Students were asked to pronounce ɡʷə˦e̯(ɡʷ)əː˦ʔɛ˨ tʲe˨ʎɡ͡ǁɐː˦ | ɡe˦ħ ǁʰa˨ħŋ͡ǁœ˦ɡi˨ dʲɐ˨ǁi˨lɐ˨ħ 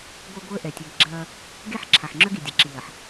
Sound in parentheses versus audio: correct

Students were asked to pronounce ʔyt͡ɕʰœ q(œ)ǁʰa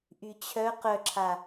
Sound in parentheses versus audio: correct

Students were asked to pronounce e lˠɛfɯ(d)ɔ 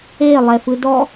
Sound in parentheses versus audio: correct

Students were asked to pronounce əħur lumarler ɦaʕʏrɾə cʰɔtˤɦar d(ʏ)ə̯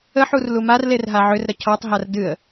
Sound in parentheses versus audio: incorrect: ɨ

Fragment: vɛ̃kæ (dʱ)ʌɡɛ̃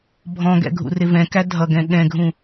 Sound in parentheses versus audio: correct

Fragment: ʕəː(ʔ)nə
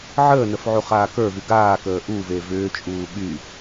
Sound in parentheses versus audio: incorrect: none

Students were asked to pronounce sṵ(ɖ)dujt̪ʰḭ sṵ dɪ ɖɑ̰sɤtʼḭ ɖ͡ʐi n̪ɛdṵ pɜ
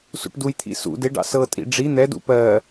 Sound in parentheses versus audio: incorrect: ʈ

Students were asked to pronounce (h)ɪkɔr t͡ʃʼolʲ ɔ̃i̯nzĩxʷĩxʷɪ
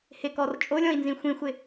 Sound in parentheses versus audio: correct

